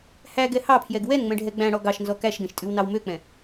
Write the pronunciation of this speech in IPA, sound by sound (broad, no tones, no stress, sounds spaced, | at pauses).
h æ ɡ ɛ h ɑ pʰ j ɛ ɡ w ɛ n ŋ͡m ɛ̃ ɖʱ ɛ ɡ͡b æ̃ ɽ ɔ ɡ ɑ ʃ n z ɔ k æ ʃ ɡ ɛ̃ ʃ tʼ ʉ w n ɑ w m ø k͡p ɛ̃